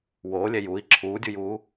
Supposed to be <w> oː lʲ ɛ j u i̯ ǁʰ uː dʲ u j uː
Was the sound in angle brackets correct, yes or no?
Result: yes